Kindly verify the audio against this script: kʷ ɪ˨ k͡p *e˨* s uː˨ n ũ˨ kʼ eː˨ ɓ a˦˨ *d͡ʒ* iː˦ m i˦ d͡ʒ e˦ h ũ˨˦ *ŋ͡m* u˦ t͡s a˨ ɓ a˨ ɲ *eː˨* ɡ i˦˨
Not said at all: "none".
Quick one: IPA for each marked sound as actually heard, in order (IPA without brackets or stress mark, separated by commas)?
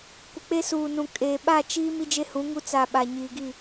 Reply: e˦, t͡ʃ, ŋ, iː˨